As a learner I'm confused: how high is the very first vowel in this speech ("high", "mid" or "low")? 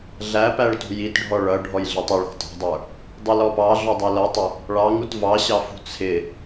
low